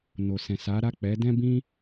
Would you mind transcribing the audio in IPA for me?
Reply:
n o˨ s ɛ̃˨ s a˨˦ ɾ a˦˨ k͡p ɛ˨˦ d ɛ̃˦ b ĩ˦

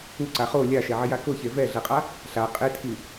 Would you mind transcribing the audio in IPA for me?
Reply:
u ǀ a χ o lʲ a ʃ ɛ ʕ ɪ j a k ʊ ç e v ɛ ɮ ɛ qʼ a | ɬ a qʼ e tʰ i

